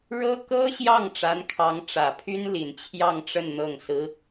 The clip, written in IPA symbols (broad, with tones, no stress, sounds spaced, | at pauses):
ɻ ɤ˥ k ɤ˥ ɕ j ɑ˥˩ ŋ ʈ͡ʂ a˧˥ n kʰ ɑ˧˥ ŋ ʈ͡ʂ ä˨˩ pʰ y˥ n l i˨˩ n t͡ɕʰ j ɑ˥˧ ŋ ʈ͡ʂ ə˥˧ n n̪ ɤ˥˩ ŋ s ɹ̩˥